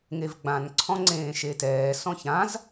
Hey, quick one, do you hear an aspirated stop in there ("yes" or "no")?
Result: yes